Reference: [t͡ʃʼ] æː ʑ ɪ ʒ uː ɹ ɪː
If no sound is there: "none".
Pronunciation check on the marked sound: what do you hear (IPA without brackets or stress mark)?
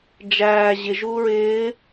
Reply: d͡ʒ